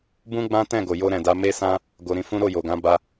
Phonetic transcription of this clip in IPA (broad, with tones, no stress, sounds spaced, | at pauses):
b ũ˦ ɡ͡b ã˦ t ɛ̃˦˨ ɡ o˨ j o˧ ɾ ɛ̃˨ d a˧ m e˦ s ã˦ | ɡ o˧ ɾ ĩ˧ f ũ˦ ɾ o˦˨ j o˨ ɡ ã˨˦ b a˦